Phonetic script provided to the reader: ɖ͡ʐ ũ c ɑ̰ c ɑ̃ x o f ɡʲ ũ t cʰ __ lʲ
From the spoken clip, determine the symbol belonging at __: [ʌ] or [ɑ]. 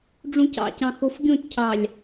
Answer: ɑ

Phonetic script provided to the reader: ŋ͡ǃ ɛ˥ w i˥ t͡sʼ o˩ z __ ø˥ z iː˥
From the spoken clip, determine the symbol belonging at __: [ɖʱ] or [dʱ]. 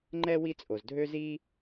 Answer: dʱ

